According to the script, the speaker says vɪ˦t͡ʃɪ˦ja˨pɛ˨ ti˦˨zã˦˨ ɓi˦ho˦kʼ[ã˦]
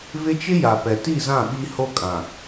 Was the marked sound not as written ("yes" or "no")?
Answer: yes